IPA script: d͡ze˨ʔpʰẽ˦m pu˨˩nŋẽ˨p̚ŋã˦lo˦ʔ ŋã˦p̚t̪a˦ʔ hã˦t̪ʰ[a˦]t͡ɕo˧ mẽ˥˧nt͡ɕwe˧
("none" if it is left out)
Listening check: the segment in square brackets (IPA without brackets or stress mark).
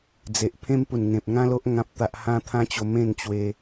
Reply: ã˦